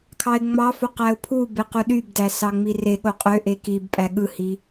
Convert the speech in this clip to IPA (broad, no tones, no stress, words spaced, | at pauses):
kʰɑɪ̯ŋ͡mɑfo qæʊ̯pʰube quɗybdæ sɑŋ͡mireɠo qʼøʔe kibpʼæ ɠɯhi